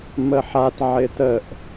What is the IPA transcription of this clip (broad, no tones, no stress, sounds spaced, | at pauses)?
m ə ħ a t ʕ ɪ t ə ʔ